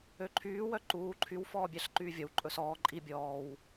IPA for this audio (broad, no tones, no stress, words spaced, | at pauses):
øǃʰyː wœǃuː ǃʰyw fɔːbʲæɬǃyːvʲɔw ǃʼɵsɔː ǃʼi bʲɔːw